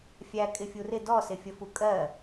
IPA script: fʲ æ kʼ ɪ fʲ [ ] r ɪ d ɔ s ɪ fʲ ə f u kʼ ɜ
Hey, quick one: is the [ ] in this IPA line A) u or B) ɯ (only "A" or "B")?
A